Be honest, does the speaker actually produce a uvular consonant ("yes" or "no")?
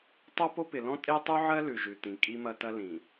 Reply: no